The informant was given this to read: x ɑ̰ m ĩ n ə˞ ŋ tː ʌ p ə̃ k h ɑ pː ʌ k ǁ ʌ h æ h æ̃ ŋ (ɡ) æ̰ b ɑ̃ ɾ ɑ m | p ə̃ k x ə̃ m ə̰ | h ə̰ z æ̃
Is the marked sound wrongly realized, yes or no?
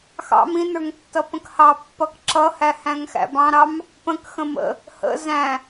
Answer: yes